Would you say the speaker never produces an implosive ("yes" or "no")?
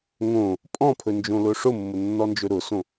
yes